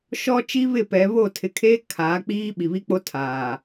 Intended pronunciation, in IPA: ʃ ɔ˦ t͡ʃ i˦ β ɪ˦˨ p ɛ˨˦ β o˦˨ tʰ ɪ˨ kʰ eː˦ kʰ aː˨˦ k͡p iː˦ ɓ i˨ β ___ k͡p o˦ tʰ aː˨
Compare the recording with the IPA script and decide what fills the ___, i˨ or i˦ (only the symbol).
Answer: i˦